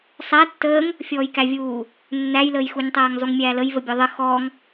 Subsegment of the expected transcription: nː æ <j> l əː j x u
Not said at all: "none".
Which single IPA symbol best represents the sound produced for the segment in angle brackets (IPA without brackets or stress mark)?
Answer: j